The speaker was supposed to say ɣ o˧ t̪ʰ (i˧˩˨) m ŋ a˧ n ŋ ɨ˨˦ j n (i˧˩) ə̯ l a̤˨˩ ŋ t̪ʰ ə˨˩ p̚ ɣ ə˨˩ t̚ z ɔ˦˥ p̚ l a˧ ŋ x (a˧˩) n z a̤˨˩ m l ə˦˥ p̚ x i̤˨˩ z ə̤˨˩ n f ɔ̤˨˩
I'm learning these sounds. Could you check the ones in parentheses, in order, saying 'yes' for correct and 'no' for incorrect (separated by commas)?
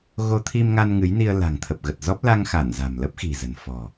no, no, yes